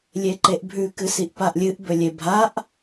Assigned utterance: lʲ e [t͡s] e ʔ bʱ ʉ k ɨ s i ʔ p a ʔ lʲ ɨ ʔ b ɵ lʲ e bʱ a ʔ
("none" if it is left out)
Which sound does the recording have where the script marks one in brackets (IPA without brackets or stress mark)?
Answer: ǃ